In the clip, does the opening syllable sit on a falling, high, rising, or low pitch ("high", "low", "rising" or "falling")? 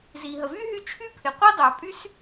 low